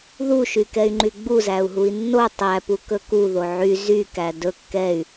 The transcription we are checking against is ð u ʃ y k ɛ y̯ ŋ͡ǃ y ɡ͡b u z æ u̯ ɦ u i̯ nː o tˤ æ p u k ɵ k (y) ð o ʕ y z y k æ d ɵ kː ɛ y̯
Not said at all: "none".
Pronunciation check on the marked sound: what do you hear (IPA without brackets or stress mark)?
u